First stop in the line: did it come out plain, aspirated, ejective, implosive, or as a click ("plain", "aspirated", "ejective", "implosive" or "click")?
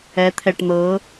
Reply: aspirated